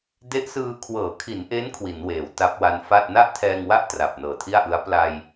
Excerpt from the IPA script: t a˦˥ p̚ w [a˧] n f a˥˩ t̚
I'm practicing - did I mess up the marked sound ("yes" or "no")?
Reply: no